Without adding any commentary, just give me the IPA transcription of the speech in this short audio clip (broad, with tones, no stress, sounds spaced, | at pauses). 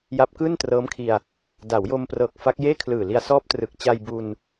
j a˦˥ p̚ k ɯː˥˩ n t r ɤː˦˥ m kʰ i˧ a̯ | d a˩˦ w j o˧ m p r ɤː˨˩ k̚ f a˦˥ k̚ j eː˥˩ kʰ l ɯː˨˩ l i˧ a̯ s ɔː˦˥ p̚ t r ɯ˨˩ k̚ t͡ɕ a˧ j b u˧ n